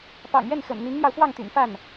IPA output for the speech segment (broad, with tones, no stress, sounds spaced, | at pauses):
p ɑ̰˨˩ ŋ ɥ ɛ˥˩ n x ə̰˨˩ n n̪ i˧˥ ŋ n̪ j ɑ˧ ʊ̯ f w ɑ˥˩ ŋ t̪ y̰˨˩ n f a˥˩ n